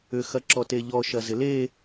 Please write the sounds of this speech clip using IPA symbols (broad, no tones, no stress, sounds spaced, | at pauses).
ʏ x ɐ ǁ ɔ t e ʎ ɔ ʃ ɐ z ɪ l e